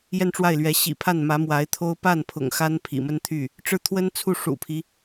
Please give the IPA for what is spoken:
j ɛ˥˧ n ʈ͡ʂ w a˥˩ ɪ̯ l ɥ ɛ˧˥ ɕ ḭ˨˩ pʰ a˥˩ n m ä˧˥ m w a˧˥ ɪ̯ t̪ʰ o˥ ʊ̯ p a˥˩ n pʰ ʊ̰˨˩ ŋ x a˥ n pʰ ḭ˨˩ m ə˥ n t̪ʰ y˥˩ | ʈ͡ʂ ɻ̩˥˩ t̪ʰ w ə˥ n t͡sʰ u˥˩ ʂ ṵ˨˩ pʰ i˦

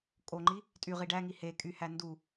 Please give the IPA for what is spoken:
kʼ o ŋ͡ǃ i | tʼ y ʁ i ɖ æ ŋ i h e kʼ y h æ n d u

